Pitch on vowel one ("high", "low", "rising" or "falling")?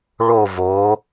falling